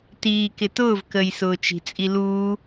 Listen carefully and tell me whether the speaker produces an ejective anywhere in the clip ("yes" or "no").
yes